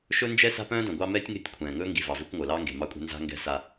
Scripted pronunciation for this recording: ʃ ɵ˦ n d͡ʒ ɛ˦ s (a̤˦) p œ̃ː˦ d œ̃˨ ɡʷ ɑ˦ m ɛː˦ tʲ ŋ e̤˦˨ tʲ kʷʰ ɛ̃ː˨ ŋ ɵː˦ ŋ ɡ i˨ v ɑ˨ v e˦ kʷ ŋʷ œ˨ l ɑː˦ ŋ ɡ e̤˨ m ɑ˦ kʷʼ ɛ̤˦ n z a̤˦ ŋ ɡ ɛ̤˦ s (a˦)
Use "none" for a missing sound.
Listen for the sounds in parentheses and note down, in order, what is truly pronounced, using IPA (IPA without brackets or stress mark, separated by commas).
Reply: a̤˦, a˦